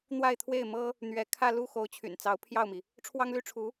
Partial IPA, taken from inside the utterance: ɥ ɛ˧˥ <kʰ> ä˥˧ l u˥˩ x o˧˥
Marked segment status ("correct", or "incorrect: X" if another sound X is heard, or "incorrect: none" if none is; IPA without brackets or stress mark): correct